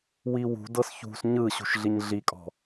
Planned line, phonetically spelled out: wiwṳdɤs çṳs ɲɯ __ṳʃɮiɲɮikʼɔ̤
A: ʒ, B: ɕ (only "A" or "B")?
B